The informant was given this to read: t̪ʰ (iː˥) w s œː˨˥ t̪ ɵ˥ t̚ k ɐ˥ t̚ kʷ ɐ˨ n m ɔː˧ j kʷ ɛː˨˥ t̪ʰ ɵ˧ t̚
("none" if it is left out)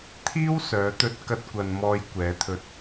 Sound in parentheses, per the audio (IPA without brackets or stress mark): iː˥